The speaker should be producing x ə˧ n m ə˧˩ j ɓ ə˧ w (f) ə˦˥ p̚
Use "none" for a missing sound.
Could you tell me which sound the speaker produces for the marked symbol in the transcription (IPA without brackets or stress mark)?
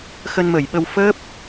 f